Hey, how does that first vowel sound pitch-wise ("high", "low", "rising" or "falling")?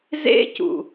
high